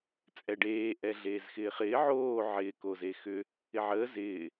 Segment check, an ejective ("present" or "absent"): present